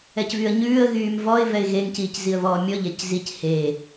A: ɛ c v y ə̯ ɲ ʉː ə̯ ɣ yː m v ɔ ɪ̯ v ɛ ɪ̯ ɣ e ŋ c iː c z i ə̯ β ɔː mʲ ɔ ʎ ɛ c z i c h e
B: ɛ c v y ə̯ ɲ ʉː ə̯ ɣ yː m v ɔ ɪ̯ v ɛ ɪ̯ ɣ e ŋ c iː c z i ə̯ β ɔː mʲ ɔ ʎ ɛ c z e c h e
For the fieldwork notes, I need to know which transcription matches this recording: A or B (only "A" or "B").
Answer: A